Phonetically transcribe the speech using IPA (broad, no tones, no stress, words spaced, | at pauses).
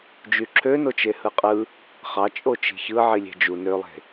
d͡ʒyǁʰønot͡ʃe hɯqʼɯ | χɑ t͡ʃʼot͡ʃi̤çɯ ʕilʲe̤d͡ʒu nølˠe̤